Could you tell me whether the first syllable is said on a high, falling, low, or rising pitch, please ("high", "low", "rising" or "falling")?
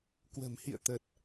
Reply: low